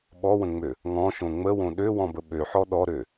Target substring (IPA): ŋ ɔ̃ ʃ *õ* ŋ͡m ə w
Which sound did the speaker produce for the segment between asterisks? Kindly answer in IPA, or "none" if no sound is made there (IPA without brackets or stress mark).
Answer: õ